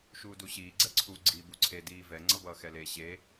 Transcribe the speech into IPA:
ʃ uː d u ɕ iː ɡ͡ǀ ɛ ǀʰ u ɡ͡ǀ iː b u ǀʰ e d iː v ɛ ŋ͡ǀ ʌ b ʌː x ɛ l e ɕ e

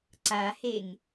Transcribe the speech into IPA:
ǀ a h e ŋ

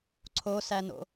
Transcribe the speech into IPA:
ǀʰ o s æ n o̰

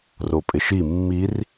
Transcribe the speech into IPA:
r o pʼ ɪ ʃ i mː i r

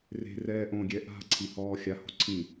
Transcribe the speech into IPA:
r e̤ r ɛː ʔ õ ɡʲ ɛ ʔ a̤ ǀʰ i h ɔː xʲ a h o̤ ǀʰ ĩ

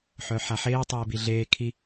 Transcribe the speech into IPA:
ħ œ ħ a ħ eː tˤ ɛː b i ɮ eː kʰ i

